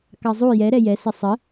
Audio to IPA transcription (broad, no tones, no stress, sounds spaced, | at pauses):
k ɑ zˤ u j ɛ ɾ ɛ j ɛ s ə sˤ ə